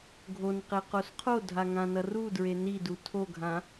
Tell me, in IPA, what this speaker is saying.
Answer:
ɡʱ o n q e q o s qʰ o dʱ a ŋ ã n ʌ r u d ɹ e n i d u tʰ o ɡʱ ã

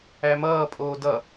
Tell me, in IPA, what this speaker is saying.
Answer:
æ m ʌː pʼ oː d ʌ

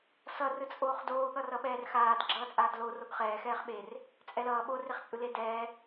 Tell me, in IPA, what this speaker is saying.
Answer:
s ʌ r ɯ t͡sʼ oː χ d oː ɠ ʌ r ʌ ɓ ɛː r x aː d ɡ͡ǁ ʌː t͡sʼ aː d l o r o ɡ χ ɛː x ɛː χ ɓ e r | t͡sʼ ɛ l ʌː ɓ o r e χ t͡sʼ ɯ l e d ɛː

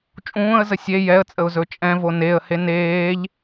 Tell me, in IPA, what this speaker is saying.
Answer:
t͡ʃʼ ũː ə̯ z ə sʲ e j ɛ ə̯ t͡sʼ ə ʊ̯ z ɵ t͡ʃʼ ɛ̃ v o n e ə̯ h e n eː ʎ

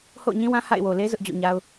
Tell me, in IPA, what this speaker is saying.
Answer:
h o̰˦˨ ʊ̯ ɲ ĩ˦ w ã˦ h a̰˦˨ ɪ̯ w o˨ l e˦ z ʊ˦ ʔ d͡ʑ o̰˦˨ ɲ a˦ ʊ̯

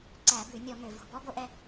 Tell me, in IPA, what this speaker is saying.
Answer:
ǀ æ˧˩˧ b ʉ˧˩˧ nʲ ɔ˧˩˧ ŋ ø˨˩ v o̤˨˩ b ɔ˦˥ b o˥˧ ʔ ɛ˥˧

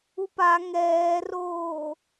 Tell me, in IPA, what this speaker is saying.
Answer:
u p a ŋ ɛː r oː

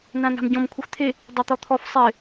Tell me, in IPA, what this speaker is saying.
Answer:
n ã n a̤ m ɟ ɔ̃ m kʷʰ e xʷ t̪ʰ e | dˤ e t̪ ɔ t̪ʰ ɔ f sˤ ɪ

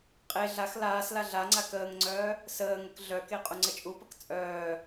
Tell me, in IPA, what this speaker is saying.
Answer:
qʼ e ɮ a x l aː s l a ɮ a ŋ͡ǀ a k əː ŋ ŋ͡ǀ œː | s əː ŋ ə k ɮ œ k e qʼ u ŋ͡ǀ ə t͡ʃʼ u p ə k t͡sʼ œː

